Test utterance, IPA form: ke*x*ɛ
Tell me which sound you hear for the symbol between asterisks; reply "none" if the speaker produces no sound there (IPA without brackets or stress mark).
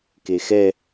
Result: x